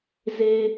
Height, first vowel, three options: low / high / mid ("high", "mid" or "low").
mid